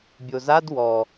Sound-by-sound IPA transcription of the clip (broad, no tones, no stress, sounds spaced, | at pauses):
bʲ o z a d w ɔ